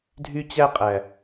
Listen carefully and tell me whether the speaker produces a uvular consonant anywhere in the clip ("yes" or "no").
yes